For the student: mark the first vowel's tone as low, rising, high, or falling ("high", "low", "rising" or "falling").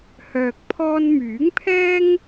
low